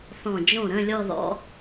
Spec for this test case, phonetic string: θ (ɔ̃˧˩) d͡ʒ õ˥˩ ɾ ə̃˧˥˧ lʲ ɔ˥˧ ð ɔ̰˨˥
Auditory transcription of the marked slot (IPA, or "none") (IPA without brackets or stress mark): ɔ̃˧˩